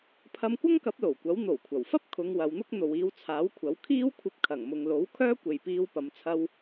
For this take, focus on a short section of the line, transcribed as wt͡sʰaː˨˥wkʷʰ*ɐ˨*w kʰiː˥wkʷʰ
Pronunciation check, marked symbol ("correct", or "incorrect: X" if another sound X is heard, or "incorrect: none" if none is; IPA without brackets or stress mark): incorrect: ɐ˨˥